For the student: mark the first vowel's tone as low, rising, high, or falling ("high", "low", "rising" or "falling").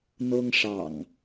high